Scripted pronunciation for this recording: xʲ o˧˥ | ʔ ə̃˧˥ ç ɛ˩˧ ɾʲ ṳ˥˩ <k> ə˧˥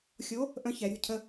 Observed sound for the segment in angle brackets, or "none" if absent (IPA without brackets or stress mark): cʰ